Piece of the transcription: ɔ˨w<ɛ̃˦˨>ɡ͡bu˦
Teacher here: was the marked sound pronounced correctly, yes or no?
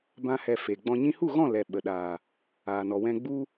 no